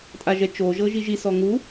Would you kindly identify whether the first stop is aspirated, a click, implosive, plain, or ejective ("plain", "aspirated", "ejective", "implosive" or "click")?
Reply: ejective